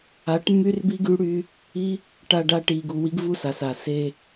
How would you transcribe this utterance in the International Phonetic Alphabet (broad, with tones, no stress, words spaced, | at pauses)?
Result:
a˨˦ʈmːy˦r bi˦ɡy˦ɽy˦ | i˦ | ʈa˧ɖa˧ ʈi˨ɡu˨ wi˦ɡvu˦sa˨sa˨ se˧